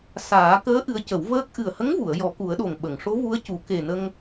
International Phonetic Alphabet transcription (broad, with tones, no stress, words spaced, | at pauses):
saː˨˩˦ kəː˧˥ ʔɨ˧˥ə̯cə˨˩˦wvəː˦˥k̚ ʔɨ˨˩ə̯hə˧˥ŋvu˨˩˨ə̯ jɔ˨˩˦ku˨˩˦ə̯ɗo˨˩ŋ ɓə˨˩˨ŋʂo˧˥vu˧˥ə̯ cu˨˩˦ ke˨˩nə˧ŋ